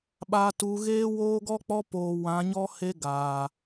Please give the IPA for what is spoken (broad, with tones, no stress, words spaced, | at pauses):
ɓaː˨tuː˨ɣeː˦ woː˦ɡɔ˦k͡pɔ˦ poː˨ wã˨˦ɲɔ˦ he˦ɡaː˨